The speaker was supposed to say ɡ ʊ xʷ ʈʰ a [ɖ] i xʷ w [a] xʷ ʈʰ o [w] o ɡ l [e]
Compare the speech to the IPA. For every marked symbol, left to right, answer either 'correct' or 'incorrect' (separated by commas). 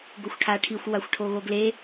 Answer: incorrect, correct, incorrect, correct